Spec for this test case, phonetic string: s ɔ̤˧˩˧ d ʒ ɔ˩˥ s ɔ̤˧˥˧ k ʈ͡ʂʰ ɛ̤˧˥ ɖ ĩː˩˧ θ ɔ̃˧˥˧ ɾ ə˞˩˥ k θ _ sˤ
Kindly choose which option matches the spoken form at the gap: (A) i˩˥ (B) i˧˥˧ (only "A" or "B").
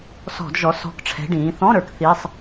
B